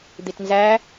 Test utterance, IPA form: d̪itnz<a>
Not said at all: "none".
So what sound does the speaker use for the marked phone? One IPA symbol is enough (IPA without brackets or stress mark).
æ